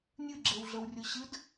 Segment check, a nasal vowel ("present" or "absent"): absent